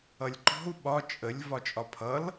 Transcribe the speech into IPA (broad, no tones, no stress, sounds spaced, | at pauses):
ʌ lʲ ǃ ɔ̤ u̯ ɓ ɒ t͡ʃʼ ə lʲ v ɒ t͡ʃʼ ɒ pʰ ʌ l